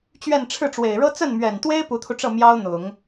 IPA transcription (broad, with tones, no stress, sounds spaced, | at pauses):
t͡ɕ ɥ ɛ˥˧ n ʈ͡ʂʰ ɻ̩˥˩ ʈ͡ʂ w e˨˩ ɪ̯ ɻ ɤ˥ t͡s ə˥˩ n m ɥ ɛ˨˩ n t̪ w e˥ ɪ̯ p u˧˥ t̪ʰ u˧ ʈ͡ʂ ɤ˥˩ m j ɑ˥ ʊ̯ n̪ ʊ˨˩˦ ŋ